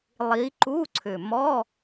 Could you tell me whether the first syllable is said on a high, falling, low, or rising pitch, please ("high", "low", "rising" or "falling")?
rising